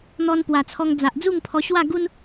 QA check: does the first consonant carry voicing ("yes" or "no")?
yes